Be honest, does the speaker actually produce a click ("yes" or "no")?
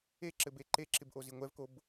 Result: yes